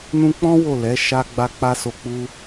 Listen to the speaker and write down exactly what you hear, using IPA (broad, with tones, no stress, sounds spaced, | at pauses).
n ũ˧ k͡p ɔ̃˦ w o˦˨ l ɛ˨˦ ʃ a˦ ɡ͡b a˧ k͡p a˦ s o˧ k͡p u˦